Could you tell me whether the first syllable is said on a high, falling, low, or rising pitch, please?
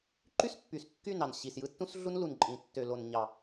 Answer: high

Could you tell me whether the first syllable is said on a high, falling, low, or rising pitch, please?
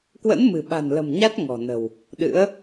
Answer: rising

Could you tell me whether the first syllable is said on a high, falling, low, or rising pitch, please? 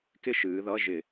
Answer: high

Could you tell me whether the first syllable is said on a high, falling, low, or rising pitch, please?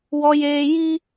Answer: high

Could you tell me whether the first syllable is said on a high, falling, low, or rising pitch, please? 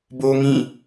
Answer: high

